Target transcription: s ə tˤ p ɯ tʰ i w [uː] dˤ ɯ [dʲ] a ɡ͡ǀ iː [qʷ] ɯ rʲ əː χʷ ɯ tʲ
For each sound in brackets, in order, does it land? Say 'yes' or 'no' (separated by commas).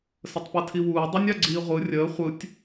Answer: yes, no, no